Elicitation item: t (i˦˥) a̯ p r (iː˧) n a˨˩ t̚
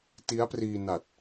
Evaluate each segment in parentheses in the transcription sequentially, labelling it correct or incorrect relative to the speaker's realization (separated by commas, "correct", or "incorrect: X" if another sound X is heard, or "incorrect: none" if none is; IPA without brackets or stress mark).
correct, correct